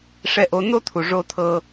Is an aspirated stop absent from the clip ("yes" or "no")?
no